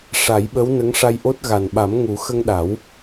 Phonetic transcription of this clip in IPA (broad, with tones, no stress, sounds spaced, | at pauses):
ʂ a˨˩˦ j ɓ ə˧˥ w n ə˧˥ ŋ ʂ a˧ j ʔ o˦˥ t̚ ɣ a˨˩ n ɓ a˨˩˦ m ŋ u˨˩˦ x ə˧ ŋ ɗ a˨˩˦ w